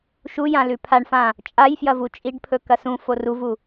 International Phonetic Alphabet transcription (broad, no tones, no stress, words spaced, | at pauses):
ʃu jãlʉpʰaɳfã | t͡ʃʼajfjɐvu t͡ʃʼiɖpʰɵ kɐsũ foruvu